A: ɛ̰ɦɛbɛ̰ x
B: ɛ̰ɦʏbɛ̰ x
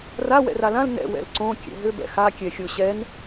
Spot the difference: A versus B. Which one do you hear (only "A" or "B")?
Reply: B